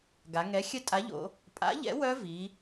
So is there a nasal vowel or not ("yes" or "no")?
no